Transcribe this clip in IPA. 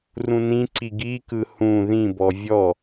r ũ n ĩ ǀ i ɡ i k ɯ h ũ ð ĩ b ɔ vʲ ɔ

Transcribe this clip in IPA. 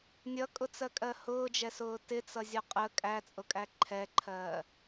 nʲ ʌ kʼ ʊ t͡s ɜ kʼ ɜ h ʊː d͡ʒ ɛ s ʊː t ɪ t͡s ʌ zʲ ɒ qʼ ə kʼ æ t͡sʼ ʊ kʼ æ ǃʰ ɛ ǃʰ ɜː

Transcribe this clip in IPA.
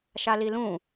ʃ a l i l ũ

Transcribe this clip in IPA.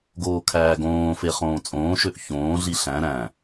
ɡ oː kʰ æː ɡ õː f e χ õː t͡sʼ õː ʃ ø ʔ ç õː ɮ i ɬ æ̃ ɾ æ̃

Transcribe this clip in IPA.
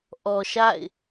ʔ ɔ˨ ʃ a̰˦˨ ɪ̯

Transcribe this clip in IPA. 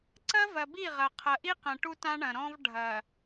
ǀ ɐ˦ v ɐ˨ b i˦˨ ʁ ɐ˨ qʰ ɐ˨ ʔ i˦ q ɐ̃˨ ʈ u˦ t ã˦ ɳ ɐ̃˨ ɾ ɔ̃˦ v ɖʱ ɐ˨

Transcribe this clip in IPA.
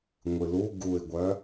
ŋʷ ɨ l u ɡ u ɪ̯ ɡʷ œ

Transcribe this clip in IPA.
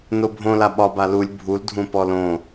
n o bʱ õ l a ɓ ɒ b a l u lʲ bʱ u l dʱ ũ p ɔ l õ

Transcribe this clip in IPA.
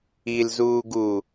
i l z uː ɡ u

